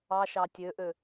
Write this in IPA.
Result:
ɑ ʃ ɑ tʲ ø ʔ ø

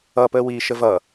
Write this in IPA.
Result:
ʌ p əː w iː ʃ ə v ʌ

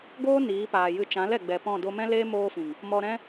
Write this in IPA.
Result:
ɡ oː˦ n iː˨˦ p aː˨ j ɨ˧ t͡ʃ ã˨˦ l ɛ˨ ɡ͡b ɛ˨ p ɔ̃˦˨ d o˧ m ɛ̃˦ l eː˦ m oː˦ f ĩ˨ ŋ | m ɔ˧ ɾ ɛ̃˦

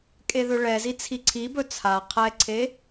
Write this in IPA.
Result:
kʼ e ð ɵ ɭ ɛ z i t͡sʰ i ǀʰ i b ɵ t͡sʰ a qʰ ɛ ǀʰ e

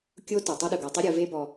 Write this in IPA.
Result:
kʲ o˦ t o˩ tˤ a˥ ɗ ɯ˩ ɡ ɤ˨ tˤ i˦ ɾʲ ɤ˨ v e˦ b ɔ˨

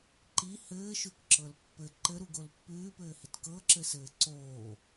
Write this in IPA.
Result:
ǃ i h ɘː ʃ ʉ k ǁ ɤ l pː ɘ ǃ ɘ ɾ u ɡ o l pː ʉː p ɘː h ɪ t k ɤ ǁ ɘ s ɘː ǀ oː

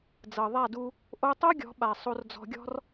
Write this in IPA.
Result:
d͡z ɤ˨ ðˤ a˦˨ d u˧ | ʔ o˧ tˤ o˦ ɡʲ ɔ̤˨˦ ɓ a˨ sˤ o˧ r d͡z ɔ̤˧ ɡʲ ɔ̤˦ r

